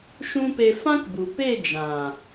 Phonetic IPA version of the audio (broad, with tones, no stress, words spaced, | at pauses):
ʃũ˦pe˧ fã˦kbu˨ pe˦˨d͡ʒã˨